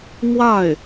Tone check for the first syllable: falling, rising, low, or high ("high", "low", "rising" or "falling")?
falling